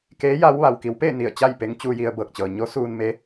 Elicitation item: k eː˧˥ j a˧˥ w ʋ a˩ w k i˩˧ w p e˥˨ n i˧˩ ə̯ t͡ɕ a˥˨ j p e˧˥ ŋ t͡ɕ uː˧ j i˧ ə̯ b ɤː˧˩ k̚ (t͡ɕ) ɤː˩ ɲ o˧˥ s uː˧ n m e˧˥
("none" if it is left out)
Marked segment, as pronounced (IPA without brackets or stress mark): t͡ɕ